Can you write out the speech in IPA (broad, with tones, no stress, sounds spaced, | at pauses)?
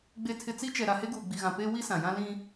ɡ͡b e˨ tʰ ɪ˨ t͡s i˦ t͡ʃ ɛ˨ ɾ a˨ h e˦ ɡ uː˨ ɡ͡b i˨ ɣ ã˨ p eː˦ w i˦ s ã˨ j ã˦ l ĩ˦